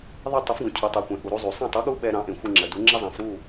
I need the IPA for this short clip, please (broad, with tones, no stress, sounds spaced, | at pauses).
ðˤ e˥˩ tˤ ə˩˥ f ɡ ũ˩ cʰ u˩ tˤ u˩ kʷ ɛ̃˩ ʔ u˩ ɾ u˧ zˤ u˩ sˤ ɛ̃˥˩ tˤ u˥ ɠ u˥ ɓ ɛ˧ ɾ ɑ̃˩˥ ʔ ẽ˩ xʷ ɨ˧ ŋ͡ǁ ə˩ d u˩˥ ŋ͡ǁ ɛ˥ zˤ ɑ̃˩˥ f ɾ u˥˩